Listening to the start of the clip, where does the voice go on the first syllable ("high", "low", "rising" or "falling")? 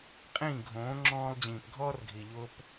falling